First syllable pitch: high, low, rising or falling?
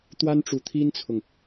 high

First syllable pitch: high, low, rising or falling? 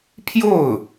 falling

